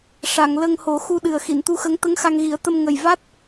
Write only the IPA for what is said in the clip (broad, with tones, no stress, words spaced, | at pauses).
ʂa˨˩˨ŋ lə˧ŋ ho˨˩˦ xu˧ɗɨ˨˩ə̯ xi˨˩˨nt̪u˧˥xə˧˥ŋ t̪ə˧˥ŋxa˧ŋɣi˨˩˦ə̯t̪ə˧m ŋə˨˩jva˦˥t̚